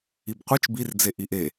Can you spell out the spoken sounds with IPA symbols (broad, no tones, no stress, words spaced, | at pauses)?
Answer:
ibqʷit͡ʃ bird͡ze ʔiʔe